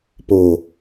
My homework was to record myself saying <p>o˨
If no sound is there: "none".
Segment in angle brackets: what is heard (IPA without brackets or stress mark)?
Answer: p